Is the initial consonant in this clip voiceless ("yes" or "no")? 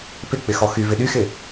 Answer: yes